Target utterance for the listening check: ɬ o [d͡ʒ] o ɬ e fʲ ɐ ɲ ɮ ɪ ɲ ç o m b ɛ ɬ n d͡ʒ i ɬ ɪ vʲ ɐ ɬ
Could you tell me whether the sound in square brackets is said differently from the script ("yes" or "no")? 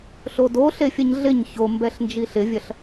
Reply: yes